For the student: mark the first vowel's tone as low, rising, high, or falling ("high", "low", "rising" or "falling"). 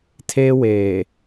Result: high